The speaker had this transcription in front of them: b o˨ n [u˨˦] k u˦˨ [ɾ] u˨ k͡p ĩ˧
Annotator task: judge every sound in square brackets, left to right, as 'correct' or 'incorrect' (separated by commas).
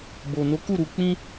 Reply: incorrect, correct